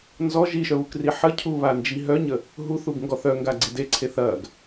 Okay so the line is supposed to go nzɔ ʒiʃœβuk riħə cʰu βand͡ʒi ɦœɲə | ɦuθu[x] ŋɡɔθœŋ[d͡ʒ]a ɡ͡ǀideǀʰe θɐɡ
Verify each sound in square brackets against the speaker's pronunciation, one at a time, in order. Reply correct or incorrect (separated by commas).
incorrect, incorrect